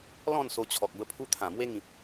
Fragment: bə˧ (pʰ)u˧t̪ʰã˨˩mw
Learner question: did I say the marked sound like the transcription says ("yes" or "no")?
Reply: yes